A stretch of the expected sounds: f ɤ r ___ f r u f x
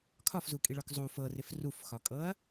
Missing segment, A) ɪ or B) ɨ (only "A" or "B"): A